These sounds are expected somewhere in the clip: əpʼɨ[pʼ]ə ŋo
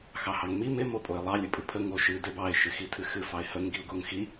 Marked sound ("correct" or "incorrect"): incorrect